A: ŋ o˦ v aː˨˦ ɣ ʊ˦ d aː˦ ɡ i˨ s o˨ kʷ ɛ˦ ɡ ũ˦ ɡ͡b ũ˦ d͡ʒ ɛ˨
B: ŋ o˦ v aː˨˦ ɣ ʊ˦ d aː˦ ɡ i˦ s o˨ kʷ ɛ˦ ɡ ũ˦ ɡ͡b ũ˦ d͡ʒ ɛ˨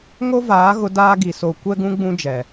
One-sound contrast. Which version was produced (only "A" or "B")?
A